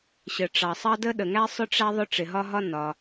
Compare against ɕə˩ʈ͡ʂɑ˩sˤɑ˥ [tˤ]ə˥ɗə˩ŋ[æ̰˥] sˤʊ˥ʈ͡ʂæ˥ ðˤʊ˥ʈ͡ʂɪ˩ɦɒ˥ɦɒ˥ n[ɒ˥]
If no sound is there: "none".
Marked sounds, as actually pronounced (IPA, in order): d, æ˥, ɒ˩

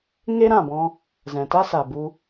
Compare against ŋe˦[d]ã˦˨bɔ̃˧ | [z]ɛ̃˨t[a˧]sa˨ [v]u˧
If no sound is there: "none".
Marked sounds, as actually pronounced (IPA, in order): ɾ, z, a˦, b

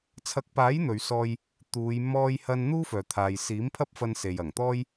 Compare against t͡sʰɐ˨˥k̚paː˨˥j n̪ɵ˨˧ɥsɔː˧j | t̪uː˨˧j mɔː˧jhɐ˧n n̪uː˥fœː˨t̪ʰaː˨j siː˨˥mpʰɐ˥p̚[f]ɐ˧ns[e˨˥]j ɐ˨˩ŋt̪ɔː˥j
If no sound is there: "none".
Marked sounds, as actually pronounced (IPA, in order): f, e˨

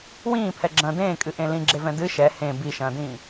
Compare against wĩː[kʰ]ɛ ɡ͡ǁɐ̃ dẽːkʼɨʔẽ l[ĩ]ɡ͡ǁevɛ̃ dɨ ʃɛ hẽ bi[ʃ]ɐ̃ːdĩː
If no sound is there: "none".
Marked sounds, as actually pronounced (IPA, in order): pʰ, ĩ, ʃ

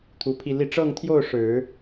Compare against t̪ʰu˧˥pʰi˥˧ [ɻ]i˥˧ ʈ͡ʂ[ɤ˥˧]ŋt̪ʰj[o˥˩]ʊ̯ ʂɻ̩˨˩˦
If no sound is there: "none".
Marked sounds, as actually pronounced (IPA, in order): l, ɤ˥˧, o˥˩

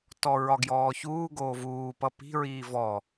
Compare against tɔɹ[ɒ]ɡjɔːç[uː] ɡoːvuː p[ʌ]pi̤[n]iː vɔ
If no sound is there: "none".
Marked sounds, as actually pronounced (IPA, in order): ɒ, uː, ʌ, ɹ

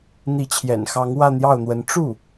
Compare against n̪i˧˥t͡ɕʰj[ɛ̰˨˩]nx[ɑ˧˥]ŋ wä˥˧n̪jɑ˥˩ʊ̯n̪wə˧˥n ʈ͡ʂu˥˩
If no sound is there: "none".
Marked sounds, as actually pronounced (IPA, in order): ɛ̰˨˩, ɑ˧˥

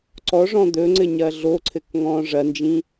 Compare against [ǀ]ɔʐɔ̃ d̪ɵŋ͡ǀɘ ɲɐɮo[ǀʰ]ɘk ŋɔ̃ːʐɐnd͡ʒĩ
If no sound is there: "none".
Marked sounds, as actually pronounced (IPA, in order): ǀ, ǀʰ

